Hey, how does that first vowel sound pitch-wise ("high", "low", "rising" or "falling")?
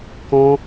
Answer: high